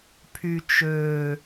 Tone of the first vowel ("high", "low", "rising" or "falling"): low